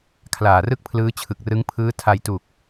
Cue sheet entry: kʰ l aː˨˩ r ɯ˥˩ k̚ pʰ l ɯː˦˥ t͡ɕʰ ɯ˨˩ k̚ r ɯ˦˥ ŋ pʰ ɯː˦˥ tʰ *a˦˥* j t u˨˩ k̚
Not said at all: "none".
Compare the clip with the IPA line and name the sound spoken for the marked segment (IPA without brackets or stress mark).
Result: a˧